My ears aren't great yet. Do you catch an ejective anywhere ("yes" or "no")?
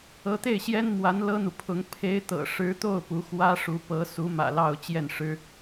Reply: no